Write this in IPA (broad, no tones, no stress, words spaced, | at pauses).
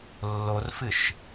lːorfɨʃ